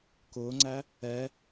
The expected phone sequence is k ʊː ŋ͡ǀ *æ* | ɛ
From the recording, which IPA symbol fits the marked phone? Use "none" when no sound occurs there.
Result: æ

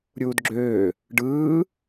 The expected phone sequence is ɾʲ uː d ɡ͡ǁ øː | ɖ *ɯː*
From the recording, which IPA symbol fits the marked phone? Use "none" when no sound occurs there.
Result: ɯː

